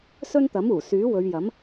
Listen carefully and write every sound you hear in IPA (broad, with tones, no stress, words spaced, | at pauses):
sɵ˥nt̪ɐ˨˥muː˨˩ syː˨˥wɵ˨˧ɥjɐ˨˥m